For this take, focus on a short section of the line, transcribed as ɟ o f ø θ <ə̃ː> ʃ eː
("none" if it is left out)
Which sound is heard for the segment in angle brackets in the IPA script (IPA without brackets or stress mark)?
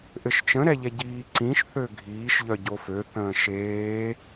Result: ə̃ː